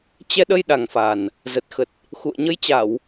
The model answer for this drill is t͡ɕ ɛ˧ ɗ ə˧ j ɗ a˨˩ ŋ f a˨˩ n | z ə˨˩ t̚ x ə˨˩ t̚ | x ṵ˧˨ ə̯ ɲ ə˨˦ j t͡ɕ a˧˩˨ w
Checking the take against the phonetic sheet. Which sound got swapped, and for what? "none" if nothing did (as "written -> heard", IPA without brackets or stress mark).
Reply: none